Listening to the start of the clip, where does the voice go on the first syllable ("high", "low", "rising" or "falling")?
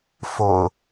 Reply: low